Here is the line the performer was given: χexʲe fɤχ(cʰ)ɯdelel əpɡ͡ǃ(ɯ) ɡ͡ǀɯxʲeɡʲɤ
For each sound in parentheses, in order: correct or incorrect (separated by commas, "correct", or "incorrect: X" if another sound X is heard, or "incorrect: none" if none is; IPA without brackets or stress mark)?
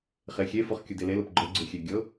incorrect: kʲ, incorrect: ɤ